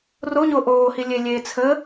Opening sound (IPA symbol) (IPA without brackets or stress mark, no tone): r